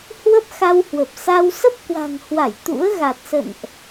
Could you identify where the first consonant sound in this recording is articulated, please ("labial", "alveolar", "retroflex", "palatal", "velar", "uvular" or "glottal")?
glottal